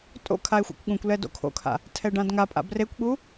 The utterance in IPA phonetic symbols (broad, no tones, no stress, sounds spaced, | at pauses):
tʼ o̰ kʰ a e̯ xʷ ɛ̰ kʷ ɠ ũ kʷ l ɛ d o̰ kʰ o̰ kʰ a̰ | tʰ ɛ ɖ ã d ŋ a pʼ a̰ b r e kʷ ɠ u